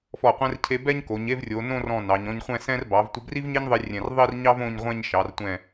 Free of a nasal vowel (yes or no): no